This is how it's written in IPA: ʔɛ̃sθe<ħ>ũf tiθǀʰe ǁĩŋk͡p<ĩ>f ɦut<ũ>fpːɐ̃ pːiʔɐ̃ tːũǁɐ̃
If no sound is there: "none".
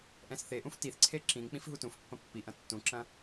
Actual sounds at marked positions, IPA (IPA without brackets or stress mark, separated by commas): ʔ, ĩ, ũ